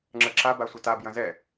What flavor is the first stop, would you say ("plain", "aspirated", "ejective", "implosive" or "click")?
click